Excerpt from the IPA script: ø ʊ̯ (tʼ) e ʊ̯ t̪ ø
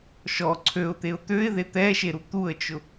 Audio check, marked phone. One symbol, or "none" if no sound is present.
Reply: t̪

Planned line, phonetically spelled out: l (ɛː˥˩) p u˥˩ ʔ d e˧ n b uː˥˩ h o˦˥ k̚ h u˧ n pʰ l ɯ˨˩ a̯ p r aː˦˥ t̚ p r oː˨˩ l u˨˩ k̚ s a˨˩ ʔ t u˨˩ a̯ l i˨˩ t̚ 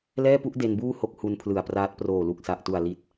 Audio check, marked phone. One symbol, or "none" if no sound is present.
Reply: ɛː˥˩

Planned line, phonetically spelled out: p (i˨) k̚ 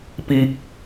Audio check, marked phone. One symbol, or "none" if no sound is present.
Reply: i˦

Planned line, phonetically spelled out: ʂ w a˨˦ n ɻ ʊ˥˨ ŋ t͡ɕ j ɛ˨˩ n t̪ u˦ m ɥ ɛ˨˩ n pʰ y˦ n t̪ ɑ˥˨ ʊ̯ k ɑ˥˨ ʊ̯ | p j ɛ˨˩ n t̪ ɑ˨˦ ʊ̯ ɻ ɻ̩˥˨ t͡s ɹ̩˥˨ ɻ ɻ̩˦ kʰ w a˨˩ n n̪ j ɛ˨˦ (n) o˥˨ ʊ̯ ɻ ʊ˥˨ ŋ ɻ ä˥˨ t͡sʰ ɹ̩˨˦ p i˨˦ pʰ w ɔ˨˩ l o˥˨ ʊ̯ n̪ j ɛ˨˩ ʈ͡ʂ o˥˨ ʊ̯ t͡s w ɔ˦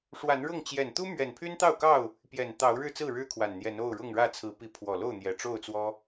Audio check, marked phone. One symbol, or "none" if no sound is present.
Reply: n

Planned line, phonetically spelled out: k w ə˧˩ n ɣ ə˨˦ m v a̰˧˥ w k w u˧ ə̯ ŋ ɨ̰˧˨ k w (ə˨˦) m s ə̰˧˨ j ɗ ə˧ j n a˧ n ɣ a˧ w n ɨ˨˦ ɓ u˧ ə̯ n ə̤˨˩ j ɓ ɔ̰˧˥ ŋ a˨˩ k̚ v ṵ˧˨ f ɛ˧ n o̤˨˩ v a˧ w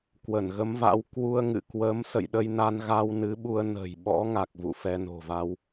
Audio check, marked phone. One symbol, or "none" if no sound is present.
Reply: ə˨˦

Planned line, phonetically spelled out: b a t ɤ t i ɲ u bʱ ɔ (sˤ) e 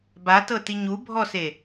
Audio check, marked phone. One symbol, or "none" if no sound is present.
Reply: s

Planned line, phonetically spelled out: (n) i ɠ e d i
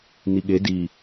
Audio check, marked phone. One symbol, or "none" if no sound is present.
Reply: n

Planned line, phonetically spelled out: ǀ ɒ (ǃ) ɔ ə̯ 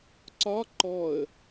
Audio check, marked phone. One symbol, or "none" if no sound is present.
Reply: ǃ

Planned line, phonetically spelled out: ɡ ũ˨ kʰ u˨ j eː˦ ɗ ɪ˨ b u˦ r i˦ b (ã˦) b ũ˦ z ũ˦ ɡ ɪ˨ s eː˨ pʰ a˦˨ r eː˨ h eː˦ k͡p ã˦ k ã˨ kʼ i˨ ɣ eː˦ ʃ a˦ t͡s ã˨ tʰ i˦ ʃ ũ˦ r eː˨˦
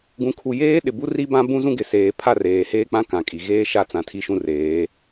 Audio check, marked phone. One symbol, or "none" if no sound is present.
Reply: ã˦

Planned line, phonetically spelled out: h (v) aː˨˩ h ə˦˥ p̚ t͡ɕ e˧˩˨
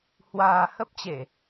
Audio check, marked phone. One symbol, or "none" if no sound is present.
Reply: w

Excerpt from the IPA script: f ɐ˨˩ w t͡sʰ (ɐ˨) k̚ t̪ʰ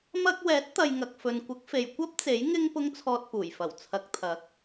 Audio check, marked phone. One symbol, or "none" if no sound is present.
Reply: ɐ˨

